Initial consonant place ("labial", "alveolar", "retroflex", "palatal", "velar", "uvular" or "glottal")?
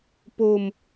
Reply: labial